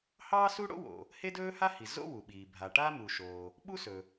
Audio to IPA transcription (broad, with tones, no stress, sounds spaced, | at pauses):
h ɑː˥ s u˥ ɽ o̰˥ w o̰˩ | h e˥ d ɵː˥ h a˥ h i˩ z o̰˥ w u˩ ɓ iː˩ bʱ a˩ ʈ a˥ m u˩ ʃ o˩ | ɓ u˥ s ɵ˩